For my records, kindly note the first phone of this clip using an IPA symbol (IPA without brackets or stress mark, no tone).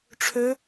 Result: ʈ͡ʂʰ